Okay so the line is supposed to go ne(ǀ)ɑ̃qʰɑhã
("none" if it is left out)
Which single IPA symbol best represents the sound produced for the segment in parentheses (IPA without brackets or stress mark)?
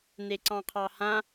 ǀ